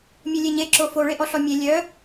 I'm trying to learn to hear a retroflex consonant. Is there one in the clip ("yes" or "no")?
yes